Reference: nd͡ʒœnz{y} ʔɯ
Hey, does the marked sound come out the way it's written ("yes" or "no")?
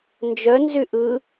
yes